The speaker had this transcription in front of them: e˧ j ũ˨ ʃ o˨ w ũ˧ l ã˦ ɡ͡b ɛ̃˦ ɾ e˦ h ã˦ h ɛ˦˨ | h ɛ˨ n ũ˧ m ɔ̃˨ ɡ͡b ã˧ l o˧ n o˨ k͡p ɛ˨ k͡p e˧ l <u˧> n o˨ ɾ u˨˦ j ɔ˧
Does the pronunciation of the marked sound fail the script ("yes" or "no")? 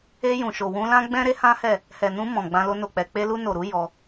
no